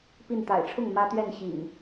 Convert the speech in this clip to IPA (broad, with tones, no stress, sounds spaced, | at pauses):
p i˥˨ n t̪ a̰˨˩ ɪ̯ ʈ͡ʂʰ ʊ˥˨ ŋ m ä˦ t̪ ɥ ɛ˥˨ n ɕ ḭ˨˩ ŋ